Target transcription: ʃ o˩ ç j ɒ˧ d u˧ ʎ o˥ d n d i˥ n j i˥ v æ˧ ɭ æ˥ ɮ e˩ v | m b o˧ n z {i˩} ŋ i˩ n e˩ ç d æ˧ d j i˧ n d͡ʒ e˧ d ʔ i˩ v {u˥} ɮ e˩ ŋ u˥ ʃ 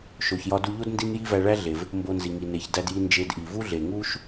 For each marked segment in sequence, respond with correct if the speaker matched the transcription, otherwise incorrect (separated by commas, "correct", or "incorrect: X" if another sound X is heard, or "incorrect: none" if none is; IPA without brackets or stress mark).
correct, correct